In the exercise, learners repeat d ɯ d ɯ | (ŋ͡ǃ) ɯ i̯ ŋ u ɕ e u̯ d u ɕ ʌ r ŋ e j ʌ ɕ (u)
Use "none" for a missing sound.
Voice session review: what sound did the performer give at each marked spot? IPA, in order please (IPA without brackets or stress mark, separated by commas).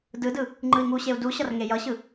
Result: ŋ͡ǃ, ɯ